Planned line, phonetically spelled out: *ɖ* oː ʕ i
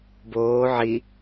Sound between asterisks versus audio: incorrect: b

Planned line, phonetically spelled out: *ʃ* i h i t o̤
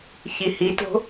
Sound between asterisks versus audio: incorrect: ç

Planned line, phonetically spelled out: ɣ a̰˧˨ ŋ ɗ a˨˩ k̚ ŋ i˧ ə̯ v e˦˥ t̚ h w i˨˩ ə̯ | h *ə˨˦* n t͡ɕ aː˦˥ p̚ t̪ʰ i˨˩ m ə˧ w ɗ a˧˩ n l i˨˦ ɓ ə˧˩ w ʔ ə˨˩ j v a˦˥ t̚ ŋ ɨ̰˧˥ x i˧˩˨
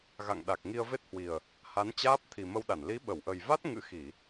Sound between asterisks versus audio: incorrect: a˨˦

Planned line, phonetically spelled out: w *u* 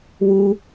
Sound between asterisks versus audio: correct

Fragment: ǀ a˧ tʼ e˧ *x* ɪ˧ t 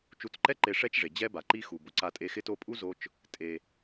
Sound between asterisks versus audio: correct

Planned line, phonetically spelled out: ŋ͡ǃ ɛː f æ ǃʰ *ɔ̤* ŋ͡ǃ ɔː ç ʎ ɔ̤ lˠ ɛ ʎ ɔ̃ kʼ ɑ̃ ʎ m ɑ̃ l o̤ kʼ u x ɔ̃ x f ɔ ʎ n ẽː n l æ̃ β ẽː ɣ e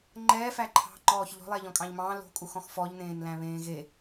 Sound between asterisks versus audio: incorrect: ɑ̤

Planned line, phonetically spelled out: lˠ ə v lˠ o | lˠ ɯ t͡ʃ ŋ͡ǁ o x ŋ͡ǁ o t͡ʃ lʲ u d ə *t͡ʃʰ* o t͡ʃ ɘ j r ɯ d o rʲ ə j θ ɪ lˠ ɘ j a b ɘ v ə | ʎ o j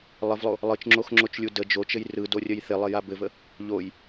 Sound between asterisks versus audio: incorrect: d͡ʒ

